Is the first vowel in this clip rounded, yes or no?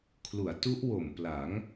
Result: yes